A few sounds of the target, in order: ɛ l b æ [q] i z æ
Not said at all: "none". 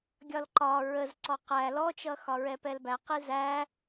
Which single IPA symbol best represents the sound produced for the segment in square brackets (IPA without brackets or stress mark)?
q